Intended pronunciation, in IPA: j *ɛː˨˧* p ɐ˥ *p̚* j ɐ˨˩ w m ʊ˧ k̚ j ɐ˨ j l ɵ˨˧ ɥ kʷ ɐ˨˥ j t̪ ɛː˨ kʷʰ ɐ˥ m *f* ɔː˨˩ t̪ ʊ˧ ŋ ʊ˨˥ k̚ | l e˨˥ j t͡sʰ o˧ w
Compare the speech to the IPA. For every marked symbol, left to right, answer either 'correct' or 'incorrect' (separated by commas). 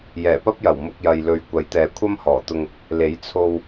incorrect, correct, incorrect